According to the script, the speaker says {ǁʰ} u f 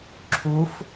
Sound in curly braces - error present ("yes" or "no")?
no